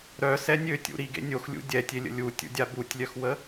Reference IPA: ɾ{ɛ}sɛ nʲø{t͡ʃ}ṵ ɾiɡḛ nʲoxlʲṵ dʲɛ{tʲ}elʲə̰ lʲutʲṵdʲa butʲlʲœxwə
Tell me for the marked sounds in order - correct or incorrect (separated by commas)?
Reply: incorrect, incorrect, correct